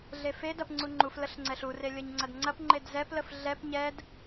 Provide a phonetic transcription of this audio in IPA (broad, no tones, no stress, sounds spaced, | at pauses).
ɮ e f e d ɐ p ŋ͡ǀ u ŋ͡ǃ u f l ə ɬ ŋ͡ǀ ɛ ɬ u r e lʲ ə ɲ ŋ͡ǀ ɐ d ŋ͡ǀ ɐ p ŋ͡ǃ e d z ɛ p l ə f ɮ ɛ p ɲ ɛ d